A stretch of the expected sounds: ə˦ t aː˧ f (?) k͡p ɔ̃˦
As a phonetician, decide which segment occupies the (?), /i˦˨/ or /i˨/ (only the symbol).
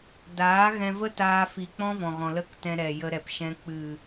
i˨